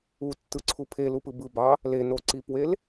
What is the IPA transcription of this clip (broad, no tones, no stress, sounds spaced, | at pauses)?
u tː ɯ ǀʰ u pʰ e l u p ɯ b ɯ b ɑ | l e n o ǀ i p w e l